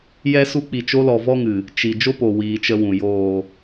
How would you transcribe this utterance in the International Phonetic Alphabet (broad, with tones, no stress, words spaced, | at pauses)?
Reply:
jɛ˦ su˧k͡pi˨t͡ʃo˧lɔ˨ vɔ˦ŋɨ˨ | t͡ʃi˨ d͡ʒo˦po˨ wiː˧t͡ʃə˦wũ˨ joː˨